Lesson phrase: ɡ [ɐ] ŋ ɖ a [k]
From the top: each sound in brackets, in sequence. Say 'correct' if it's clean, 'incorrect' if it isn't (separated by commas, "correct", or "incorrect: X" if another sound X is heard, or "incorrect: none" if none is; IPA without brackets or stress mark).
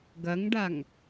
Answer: correct, incorrect: ŋ